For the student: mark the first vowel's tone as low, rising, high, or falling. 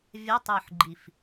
rising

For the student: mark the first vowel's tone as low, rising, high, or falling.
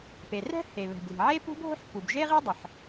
low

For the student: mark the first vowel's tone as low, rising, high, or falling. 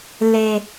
low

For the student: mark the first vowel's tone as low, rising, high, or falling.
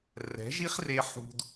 rising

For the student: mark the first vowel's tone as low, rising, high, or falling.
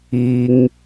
high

